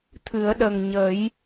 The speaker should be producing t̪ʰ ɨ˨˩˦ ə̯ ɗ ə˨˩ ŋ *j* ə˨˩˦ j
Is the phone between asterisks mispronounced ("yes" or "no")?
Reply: yes